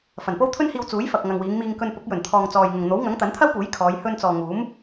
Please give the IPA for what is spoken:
f ɐ˨˩ n p o˥ w t̪ʰ ɵ˥ n h iː˧ w t͡s uː˨˥ j f ɐ˨ k̚ ŋ ɐ˨ ŋ w iː˨˧ ŋ m iː˧ ŋ k ɵ˧ n p ʊ˨˥ k̚ j ɵ˨˩ n t̪ʰ ɔː˨ ŋ t͡s ɔː˨ j ŋ ʊ˨ ŋ n̪ o˨˥ w ŋ ɐ˨˥ ŋ t̪ ɐ˨˥ n t̪ʰ ɐ˥ w p uː˨˥ j kʰ ɔː˨˧ j h ɵ˧ n t͡s ɔː˨ ŋ uː˨˥ m

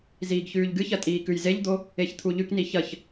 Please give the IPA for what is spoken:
z iː ɡ ç ʉː ʎ ɡ ɨ ç ɐ tʼ iː k ʉ j z e ʎ d̪ o | e ç t̪ʰ u ʎ ʉ k n i ç ɐ ç

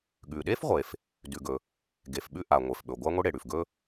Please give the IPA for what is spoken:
ɠ ʉ˩ ɗ e˥ f ʁʷ e˩ f | d ʉ˩ ɡ ɵ˩ | ɡ e˩ f ɓ ʉ˥ ʔ a˩ ŋʷ e˩ f ɓ ɵ˩ ɡʷ a˥ ŋʷ i˥ ɽ e˩ ɽ ʉ˩ f ɡ ɵ˥

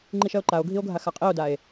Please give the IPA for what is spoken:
ŋ͡ǃ i ʃ ɜ o̯ ǃ a o̯ ɡʱ i o̯ ɡʱ a x a qʼ i o̯ d a e̯

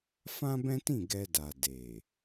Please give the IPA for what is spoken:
f ã˦ b ɛ̃˦ t ĩ˦˨ ɡ ɛ˧ d a˨ d e˨

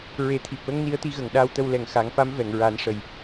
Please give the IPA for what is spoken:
ɹ e˨˩˦ t̪ʰ i˨˩ p̚ w ə˧˥ ŋ n i˧˥ ə̯ t̪ i˧˥ ɣ ə˨˩ ŋ ɗ aː˧ w t̪ ə˧ w l ɛ˨˩ ŋ x a˨˩˦ ŋ f a˧˥ m v ɛ˨˩˨ ŋ ɹ a˨˩˦ n ʂ ə˨˩ j

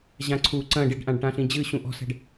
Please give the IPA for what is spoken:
ʑ ã ǀʰ u ǀ ɐ̃ ɖ i ɖ ʔ ã ɖ ʈ ã ɬ ĩ d͡ʑ ɨ ɕ ũ ʔ ɔ̤ s ɛ̤ ɖ

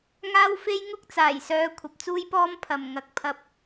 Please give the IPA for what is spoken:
ŋ aː˥ w f e˥ j ŋ ʊ˥ k̚ t͡s aː˨˩ j s œː˨˧ kʷʰ ɐ˨ p̚ t͡s uː˥ j p ɔː˥ m pʰ ɐ˨ m ŋ ɐ˧ k̚ pʰ ɐ˧ p̚

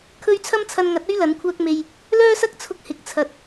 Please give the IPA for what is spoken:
kʰ ɵ˥ ɥ t͡sʰ ɐ˥ m t͡sʰ ɐ˧ n ŋ ɐ˨˥ t̚ ɵ˥ ɥ l ɐ˨˥ n kʷʰ œː˥ k̚ m e˧ j | l œː˥ s ɐ˥ k̚ t͡sʰ ʊ˧ k̚ h ɪ˨ k̚ t͡sʰ ɐ˨ t̚

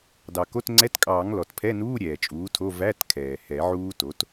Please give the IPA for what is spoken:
d ɑ˩ k o˧˥˧ t ŋ͡ǀ ɛ˧˥˧ t kʼ ɑː˨˩˦ ŋ l ɔ˩ t pʰ ɛ˧˥˧ n uː˧˥˧ ɾʲ ɛː˩ t͡ʃʼ uː˩˥ tʰ o˧˥˧ v æ˧˥˧ t kʰ ɛː˩ h ɛ˨˩˦ ʕ uː˦˥ t o˩˥ t

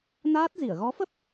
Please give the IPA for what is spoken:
n aː˦˥ t̚ z i˧˩ ə̯ ɣ ɔ˨˦ f ə˦˥ p̚

